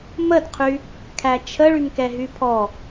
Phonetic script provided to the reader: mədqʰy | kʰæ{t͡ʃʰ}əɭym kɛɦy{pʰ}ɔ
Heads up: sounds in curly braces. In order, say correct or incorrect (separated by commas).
correct, correct